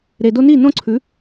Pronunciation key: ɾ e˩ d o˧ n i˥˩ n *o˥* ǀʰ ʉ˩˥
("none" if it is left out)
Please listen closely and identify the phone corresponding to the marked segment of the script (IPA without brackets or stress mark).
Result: õ˥